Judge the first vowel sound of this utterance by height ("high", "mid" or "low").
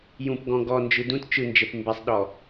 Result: high